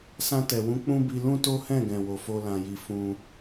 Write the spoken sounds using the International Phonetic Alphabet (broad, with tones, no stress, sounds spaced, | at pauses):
s ã˧ t ɛ˨ w ũ˨˦ k͡p ũ˦ b i˧ l ũ˦ t o˦ h ɛ̃˦˨ ɡ ɛ̃˨ w o˨ f o˧ l ã˧ j i˧ f ũ˧